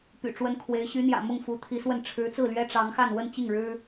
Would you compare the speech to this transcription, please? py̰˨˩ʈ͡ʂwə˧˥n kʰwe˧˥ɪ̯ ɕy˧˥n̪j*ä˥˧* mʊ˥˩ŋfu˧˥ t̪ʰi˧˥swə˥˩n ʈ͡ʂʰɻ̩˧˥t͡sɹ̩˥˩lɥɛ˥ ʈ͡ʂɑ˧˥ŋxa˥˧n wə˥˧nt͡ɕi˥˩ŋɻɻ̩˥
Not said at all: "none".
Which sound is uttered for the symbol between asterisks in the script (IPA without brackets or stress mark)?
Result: ä̰˨˩